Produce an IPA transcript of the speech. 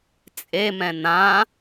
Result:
t͡sʼ e m ɛ̃ n ã

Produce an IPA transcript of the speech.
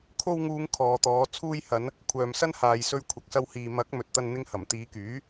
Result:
kʰ o˧ w ŋ uː˨˧ ŋ kʰ ɔː˨ t̪ ɔː˨˧ t͡sʰ uː˧ j h ɐ˨˧ n | kʷʰ œː˨ m s ɐ˥ n h aː˨ j s ɵ˧ ɥ kʷʰ ɐ˨ k̚ s ɐ˧ w h iː˨ m ɐ˨˥ k̚ m ɵ˨ t̚ t̪ ɐ˧ n n̪ ɪ˧ ŋ h ɐ˨˩ m t̪ iː˨˧ k yː˨˥

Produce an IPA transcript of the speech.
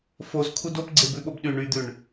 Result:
f o z kʰ u d o p ɡ͡ǀ e b ʉ ɓ o b ɗ y ɳ y d̪ ʉ ɳ

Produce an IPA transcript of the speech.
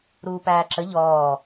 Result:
ɾ uː p æː ǁ ə ʎ ɔː

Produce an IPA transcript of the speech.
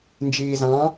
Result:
n d͡ʒ iː z ɑ̃

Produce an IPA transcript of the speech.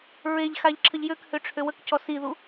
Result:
ɹ e ʎ x a ʎ ǁʰ ə ʎ j ø k h ø ʈ͡ʂʰ ø w ə k c ɔ s i ð u

